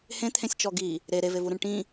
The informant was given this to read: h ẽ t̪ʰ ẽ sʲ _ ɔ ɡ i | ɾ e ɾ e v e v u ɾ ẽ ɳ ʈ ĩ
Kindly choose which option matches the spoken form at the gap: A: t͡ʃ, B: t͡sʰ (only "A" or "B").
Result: A